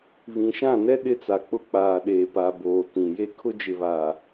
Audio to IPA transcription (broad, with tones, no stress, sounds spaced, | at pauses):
β ĩ˨ ʃ ã˦˨ n ɛ˦ ɗ ɪ˦ t͡s a˨ k͡p ʊ˦ k͡p aː˨ ɗ eː˨ p a˨ b oː˨ t ĩ˨ j e˦ kʰ ʊ˦ d͡ʒ ɪ˨ β aː˨